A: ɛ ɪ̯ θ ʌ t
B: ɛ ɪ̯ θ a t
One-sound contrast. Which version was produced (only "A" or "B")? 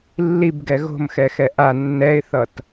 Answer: A